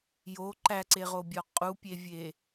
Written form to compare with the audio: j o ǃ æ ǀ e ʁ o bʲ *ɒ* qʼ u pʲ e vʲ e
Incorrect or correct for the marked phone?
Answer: correct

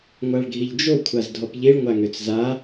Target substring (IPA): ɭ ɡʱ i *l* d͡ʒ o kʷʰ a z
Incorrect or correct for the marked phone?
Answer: incorrect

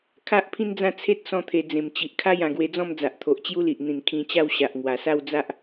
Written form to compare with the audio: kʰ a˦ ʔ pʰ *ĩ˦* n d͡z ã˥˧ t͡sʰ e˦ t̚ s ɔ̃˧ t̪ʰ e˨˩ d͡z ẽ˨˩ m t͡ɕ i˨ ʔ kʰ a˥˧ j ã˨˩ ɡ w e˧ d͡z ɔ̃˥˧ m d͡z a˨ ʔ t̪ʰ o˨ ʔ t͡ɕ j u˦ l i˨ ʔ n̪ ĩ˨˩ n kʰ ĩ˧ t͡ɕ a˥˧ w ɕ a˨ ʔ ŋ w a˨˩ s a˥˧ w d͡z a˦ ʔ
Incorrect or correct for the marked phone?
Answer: correct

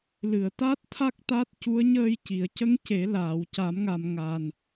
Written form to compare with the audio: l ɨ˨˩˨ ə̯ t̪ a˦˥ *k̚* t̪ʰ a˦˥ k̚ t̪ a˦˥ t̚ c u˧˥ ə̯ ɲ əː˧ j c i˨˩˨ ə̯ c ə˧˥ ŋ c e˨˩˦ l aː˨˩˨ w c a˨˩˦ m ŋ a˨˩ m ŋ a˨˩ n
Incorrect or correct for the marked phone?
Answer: incorrect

